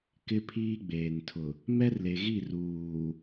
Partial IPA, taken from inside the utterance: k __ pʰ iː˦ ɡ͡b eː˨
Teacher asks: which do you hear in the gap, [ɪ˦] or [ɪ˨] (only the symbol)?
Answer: ɪ˦